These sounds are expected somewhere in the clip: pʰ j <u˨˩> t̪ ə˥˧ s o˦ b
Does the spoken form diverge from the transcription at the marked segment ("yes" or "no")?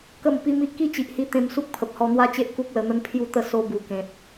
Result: yes